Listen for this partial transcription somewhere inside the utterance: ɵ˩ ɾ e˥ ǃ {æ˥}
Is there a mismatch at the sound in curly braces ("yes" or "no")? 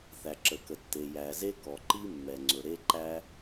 no